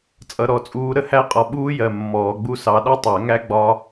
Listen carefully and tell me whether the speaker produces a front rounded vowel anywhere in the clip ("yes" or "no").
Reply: no